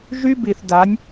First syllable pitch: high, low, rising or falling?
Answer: high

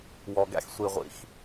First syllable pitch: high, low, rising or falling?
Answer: low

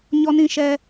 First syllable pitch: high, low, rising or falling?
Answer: high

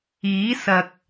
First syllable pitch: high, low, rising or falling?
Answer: rising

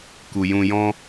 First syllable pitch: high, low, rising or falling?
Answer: low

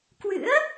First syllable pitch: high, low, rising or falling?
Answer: rising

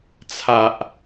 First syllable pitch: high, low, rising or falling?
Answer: low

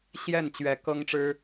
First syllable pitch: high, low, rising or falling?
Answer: falling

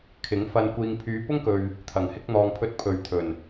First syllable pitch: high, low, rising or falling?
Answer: rising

